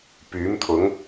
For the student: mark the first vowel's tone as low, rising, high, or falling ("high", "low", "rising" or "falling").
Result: rising